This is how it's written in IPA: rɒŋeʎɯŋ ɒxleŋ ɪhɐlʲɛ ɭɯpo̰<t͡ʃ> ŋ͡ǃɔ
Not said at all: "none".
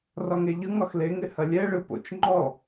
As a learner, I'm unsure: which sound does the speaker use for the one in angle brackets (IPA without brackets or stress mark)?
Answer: t͡ʃ